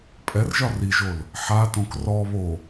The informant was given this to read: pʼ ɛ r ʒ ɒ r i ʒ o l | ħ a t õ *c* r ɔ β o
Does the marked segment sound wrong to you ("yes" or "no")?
yes